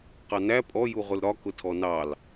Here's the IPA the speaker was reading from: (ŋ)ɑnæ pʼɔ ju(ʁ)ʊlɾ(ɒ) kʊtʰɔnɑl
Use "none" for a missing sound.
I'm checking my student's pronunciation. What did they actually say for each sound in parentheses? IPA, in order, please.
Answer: q, ʁ, ɒ

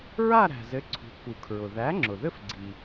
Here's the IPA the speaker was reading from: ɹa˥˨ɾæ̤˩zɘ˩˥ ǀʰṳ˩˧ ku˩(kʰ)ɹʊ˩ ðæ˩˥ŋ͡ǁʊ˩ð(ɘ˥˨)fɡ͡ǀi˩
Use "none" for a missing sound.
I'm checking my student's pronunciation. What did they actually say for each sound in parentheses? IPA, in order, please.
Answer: kʰ, ɘ˥˨

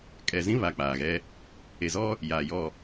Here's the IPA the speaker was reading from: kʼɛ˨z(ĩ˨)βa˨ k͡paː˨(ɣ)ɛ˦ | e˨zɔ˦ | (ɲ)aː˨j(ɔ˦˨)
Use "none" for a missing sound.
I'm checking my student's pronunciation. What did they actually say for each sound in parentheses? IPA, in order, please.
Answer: ĩ˦, ɣ, j, ɔ˦˨

